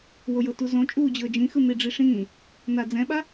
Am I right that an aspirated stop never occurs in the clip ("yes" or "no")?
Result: yes